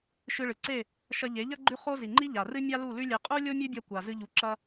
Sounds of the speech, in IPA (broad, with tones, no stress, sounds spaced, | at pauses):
ʃ ɨ˧ ɭ ɨ˨ ǀ e˦˨ | ʃ ɐ˧ ʎ e˨˦ ʎ ɐ˦ ɡ͡ǃ ʉ˦ χ o˦ z i˨ ŋ͡ǃ i˦ ʎ a˨ r ɨ˦ mʲ a˦ l u˦˨ l ʉ˦ lʲ e˧ qʼ u˦ lʲ o˦ mʲ ʉ˦ bʲ ɐ˧ kʷ a˨ z ɨ˧ ʎ u˨ ǁ ɐ˧